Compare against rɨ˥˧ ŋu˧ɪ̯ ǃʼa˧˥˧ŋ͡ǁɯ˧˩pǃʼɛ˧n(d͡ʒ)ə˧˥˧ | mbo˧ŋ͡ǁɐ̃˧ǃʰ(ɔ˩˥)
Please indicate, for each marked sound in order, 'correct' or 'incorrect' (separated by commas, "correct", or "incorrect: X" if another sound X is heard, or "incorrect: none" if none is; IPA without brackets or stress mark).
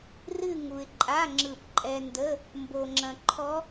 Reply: incorrect: d, incorrect: ɔ˦˥